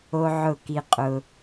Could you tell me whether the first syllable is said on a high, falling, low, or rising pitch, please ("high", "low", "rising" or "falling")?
high